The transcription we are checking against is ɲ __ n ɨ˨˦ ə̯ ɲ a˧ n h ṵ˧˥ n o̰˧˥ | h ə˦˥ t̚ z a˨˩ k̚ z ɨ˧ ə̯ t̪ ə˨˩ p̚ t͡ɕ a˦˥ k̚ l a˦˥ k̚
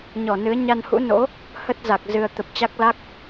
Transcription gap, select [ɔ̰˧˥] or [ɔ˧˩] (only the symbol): ɔ˧˩